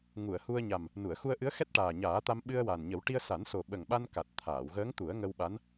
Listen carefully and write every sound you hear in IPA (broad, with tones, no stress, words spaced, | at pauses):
ŋu˨˩˨ə̯hu˧ə̯ ɲa˨˩m | nu˨˩˨ə̯xu˧ə̯ʔɨ˧˥ə̯ xɛ˦˥t̚ʈaː˨˩ɲaː˨˩˦t̪a˧m ɓɨ˧ə̯wa˨˩nɲə˨˩˦w ʈi˧ə̯sa˨˩˦n so˨˩ɓə˨˩ŋɓa˧nka˨˩t̚ t̪ʰaː˨˩˨wɣəː˧˥ŋ t̪u˨˩˦ə̯ŋə˧wɓa˧˥n